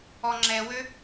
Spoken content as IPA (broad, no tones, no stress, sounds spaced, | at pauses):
ɔ ŋ͡ǁ ɛ w ø